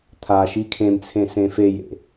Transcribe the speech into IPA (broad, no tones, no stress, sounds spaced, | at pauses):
t̪ʰ a ʃ i kʰ ẽ m t͡sʰ ẽ s ẽ f e j ḛ